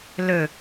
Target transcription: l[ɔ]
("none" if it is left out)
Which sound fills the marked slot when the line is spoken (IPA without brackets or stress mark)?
ɵ